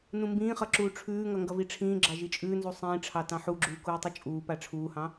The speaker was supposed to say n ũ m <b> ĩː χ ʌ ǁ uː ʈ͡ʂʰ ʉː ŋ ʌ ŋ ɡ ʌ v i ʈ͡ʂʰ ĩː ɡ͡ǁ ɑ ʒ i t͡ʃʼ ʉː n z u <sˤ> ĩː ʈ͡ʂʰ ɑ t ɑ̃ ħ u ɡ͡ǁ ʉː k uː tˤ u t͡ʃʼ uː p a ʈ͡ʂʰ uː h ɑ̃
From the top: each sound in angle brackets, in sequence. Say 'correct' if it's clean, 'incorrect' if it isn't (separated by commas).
correct, correct